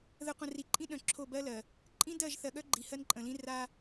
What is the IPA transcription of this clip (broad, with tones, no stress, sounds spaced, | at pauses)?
ð ə˨ qʷ ə̃˨ r i˨ ǃʼ ĩ˦ ɗ œ̃˨ ǁʰ o˦˨ b ɜ˦ l ɜ˨ | ǃʼ ĩ˦ d ɜ˦˨ ʒ θ ɜ˨ ɠ œ˦ ɡ͡ǃ i˨ h ɜ˦ n ǃʼ ə̃˨ l ĩ˦ r a˦